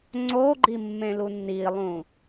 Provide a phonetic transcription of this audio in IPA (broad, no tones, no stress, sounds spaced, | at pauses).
ŋ͡ǀ o ɡ͡ǃ i mː ẽ l u nː i lˠ ũ